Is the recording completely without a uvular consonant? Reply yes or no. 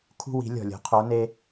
no